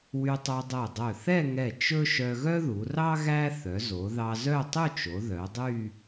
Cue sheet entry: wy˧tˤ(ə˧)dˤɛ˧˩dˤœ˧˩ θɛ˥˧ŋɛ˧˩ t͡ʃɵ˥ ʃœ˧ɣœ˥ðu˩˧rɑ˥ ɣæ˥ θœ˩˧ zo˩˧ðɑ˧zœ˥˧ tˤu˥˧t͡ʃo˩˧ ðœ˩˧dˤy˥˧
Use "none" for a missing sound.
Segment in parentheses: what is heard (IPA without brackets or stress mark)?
œ˧